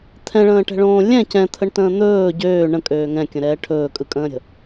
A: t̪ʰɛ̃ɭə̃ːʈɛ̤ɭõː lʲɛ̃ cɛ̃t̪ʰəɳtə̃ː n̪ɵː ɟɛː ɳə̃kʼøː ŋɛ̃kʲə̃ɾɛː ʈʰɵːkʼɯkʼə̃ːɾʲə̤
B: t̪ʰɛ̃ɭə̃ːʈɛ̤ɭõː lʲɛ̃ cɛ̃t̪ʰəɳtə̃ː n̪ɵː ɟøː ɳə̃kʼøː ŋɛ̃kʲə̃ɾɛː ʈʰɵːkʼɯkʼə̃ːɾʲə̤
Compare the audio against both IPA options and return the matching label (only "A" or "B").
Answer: B